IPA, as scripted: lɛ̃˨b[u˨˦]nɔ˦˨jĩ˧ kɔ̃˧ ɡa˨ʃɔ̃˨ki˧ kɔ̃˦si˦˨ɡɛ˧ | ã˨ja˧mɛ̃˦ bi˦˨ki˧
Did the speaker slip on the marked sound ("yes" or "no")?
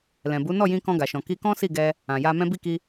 no